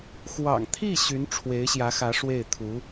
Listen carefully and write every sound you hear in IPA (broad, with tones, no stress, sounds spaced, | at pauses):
x w ɑ̰˨˩ ŋ t̪ʰ i˥˩ ɕ y˧˥ n ʈ͡ʂʰ w e˧˥ ɪ̯ ɕ j ä˧˥ x ä˧˥ ʂ w e˥˩ ɪ̯ t̪ʰ u˧˥